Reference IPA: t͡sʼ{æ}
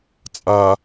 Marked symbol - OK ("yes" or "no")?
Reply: no